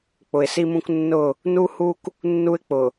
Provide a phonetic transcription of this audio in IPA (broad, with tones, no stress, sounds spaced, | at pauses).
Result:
k͡p ʊ˨ ɪ̯ s i˦ m ũ˦ k nː ʊ˦˨ | n u˦ h u˦ k | nː u˦ ɪ̯ k͡p ʊ˨